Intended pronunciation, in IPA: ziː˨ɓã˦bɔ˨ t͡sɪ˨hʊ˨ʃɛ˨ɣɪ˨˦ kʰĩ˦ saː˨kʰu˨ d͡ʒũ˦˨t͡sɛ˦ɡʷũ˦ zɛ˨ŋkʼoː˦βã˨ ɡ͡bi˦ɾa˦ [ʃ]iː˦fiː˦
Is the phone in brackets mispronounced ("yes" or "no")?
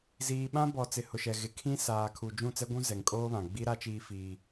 yes